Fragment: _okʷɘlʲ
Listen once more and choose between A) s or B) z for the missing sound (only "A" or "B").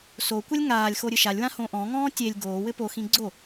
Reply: A